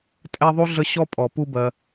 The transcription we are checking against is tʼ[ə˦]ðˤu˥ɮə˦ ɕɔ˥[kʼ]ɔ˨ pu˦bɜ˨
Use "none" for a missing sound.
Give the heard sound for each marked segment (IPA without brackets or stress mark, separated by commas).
ɛ˦, pʼ